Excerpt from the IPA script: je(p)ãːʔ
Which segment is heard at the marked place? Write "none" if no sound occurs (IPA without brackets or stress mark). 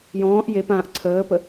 p